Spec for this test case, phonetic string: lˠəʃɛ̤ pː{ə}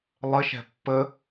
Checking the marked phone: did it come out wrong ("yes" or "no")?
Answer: no